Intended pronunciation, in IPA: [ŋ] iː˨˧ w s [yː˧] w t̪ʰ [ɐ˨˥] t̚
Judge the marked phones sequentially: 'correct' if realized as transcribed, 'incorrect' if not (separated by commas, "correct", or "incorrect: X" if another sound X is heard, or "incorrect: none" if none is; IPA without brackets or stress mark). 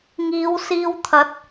correct, incorrect: iː˧, correct